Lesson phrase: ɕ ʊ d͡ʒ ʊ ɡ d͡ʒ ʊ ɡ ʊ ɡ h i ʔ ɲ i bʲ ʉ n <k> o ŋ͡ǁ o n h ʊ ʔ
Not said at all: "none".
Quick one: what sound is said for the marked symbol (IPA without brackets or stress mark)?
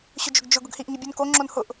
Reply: k